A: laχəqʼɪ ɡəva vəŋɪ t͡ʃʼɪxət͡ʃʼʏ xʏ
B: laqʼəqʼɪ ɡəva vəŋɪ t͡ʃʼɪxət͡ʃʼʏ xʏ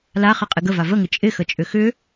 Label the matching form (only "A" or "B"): A